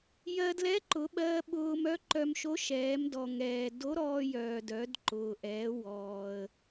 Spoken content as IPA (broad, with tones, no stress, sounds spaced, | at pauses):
j ɜ˧ d l ɛ˧˥ ǃ ʊ˩˧ ɓ ɜː˧ ɓ ʊː˧ m œ˧˥ ǃ œ˧ m ʃ o˧˥ ʃ ɛː˩˧ m d ɔ˩ ŋ ɛː˩ d o˧˥ ɾ ɔː˧ j œː˩ d œ˩˧ d ǃ ʊː˩ ʔ ɛː˩˧ w ɔː˩ ə̯